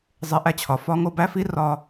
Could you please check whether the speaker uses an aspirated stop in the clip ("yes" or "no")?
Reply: yes